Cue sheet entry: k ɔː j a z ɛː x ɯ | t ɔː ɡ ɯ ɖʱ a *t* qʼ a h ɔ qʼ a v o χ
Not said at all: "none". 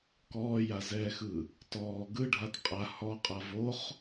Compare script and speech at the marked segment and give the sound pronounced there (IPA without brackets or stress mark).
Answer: t